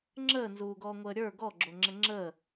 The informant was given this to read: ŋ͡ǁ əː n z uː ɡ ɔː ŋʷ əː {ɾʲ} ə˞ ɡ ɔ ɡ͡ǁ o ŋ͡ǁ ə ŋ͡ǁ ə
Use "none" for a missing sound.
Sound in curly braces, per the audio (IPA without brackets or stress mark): ɾʲ